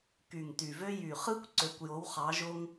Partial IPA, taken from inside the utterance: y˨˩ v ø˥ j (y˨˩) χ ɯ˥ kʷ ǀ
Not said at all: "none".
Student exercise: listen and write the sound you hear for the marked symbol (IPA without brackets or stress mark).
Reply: y˨˩